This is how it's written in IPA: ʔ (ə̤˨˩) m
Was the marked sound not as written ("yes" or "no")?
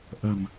no